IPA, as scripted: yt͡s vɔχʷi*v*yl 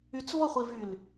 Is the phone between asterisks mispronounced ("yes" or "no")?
no